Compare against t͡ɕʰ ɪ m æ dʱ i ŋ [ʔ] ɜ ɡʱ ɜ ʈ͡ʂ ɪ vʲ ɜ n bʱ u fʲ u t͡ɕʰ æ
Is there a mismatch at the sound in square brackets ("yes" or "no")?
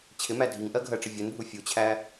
no